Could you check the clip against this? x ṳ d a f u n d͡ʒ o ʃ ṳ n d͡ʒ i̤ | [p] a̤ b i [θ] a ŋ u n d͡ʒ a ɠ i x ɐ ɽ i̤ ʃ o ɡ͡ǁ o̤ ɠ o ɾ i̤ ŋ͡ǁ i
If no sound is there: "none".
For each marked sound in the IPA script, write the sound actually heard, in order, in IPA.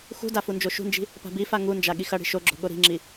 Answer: p, f

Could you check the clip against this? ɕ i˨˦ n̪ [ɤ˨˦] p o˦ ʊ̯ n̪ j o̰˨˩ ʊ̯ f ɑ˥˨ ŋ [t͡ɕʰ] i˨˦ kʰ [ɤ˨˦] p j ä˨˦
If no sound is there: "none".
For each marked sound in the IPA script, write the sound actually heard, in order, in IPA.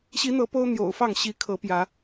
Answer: ɤ˨˦, ɕ, ɤ˨˦

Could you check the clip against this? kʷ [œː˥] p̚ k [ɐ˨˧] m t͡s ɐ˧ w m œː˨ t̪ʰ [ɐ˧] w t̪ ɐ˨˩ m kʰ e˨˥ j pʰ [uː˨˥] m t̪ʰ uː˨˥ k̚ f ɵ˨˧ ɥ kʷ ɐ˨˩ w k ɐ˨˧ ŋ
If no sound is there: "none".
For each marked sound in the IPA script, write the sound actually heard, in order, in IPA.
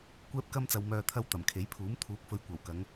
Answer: ɛː˥, ɐ˥, ɐ˧, uː˨˥

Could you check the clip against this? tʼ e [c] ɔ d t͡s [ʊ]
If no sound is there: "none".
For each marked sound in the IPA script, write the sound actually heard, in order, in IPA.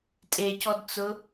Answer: c, ʊ

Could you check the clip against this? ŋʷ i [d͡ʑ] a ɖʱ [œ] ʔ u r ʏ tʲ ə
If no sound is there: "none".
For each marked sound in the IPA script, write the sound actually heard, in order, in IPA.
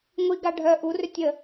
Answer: ɡ, œ

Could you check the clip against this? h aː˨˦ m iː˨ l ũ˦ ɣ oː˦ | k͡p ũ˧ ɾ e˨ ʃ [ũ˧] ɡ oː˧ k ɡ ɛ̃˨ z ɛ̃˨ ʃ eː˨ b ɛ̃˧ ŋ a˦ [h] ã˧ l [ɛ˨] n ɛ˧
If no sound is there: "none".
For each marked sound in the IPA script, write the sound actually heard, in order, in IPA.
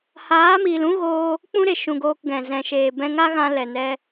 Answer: ũ˧, ɣ, ɛ˨

